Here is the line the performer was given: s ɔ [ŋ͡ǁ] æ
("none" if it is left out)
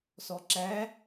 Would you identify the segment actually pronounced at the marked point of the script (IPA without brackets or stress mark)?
ǁ